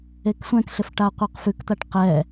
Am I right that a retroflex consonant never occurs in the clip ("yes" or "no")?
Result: no